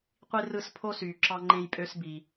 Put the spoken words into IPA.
qʷi˦rɯ˦s pʰo˥syː˨ǁɑ˦ŋ͡ǃẽ˦j pʼø˥sbi˨

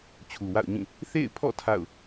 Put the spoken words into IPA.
t͡ɕʰu˨wa̰˦˨ʊ̯ɲĩ˦˨ | θḛ˦˨ɪ̯pʰɔ̰˦˨ tʰa̰˦˨ʊ̯

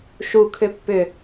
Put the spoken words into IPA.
ʃu kʰʏpːʏ

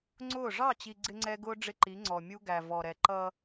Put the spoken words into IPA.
ŋ͡ǀʊː˦˨ ʐɑ˦˨t͡ɕi˨ ɡ͡ǀɪ˦ŋ͡ǀɛ˦ɡʊː˦ ɖ͡ʐɪ˦ǃi˨˦ ŋ͡ǀɔ˨mʲu˦ ɡæ˨vɔ˨ɾɛ˨ ǃʌ˦

